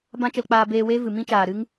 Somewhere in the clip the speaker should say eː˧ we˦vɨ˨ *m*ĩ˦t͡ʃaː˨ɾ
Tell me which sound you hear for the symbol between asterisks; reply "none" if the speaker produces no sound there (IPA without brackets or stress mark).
m